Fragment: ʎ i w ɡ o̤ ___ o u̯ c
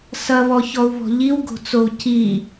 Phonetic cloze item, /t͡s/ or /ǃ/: t͡s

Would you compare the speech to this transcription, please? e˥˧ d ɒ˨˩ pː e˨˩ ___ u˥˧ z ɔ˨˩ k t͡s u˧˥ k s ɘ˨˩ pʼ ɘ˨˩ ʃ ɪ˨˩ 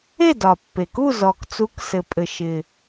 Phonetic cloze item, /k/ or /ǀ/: k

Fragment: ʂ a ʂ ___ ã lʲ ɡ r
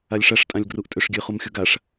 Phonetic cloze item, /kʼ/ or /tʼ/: tʼ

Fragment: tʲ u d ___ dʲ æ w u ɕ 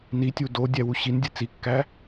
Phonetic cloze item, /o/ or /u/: o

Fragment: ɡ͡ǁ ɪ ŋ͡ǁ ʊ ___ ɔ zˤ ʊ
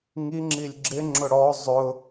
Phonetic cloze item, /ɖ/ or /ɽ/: ɽ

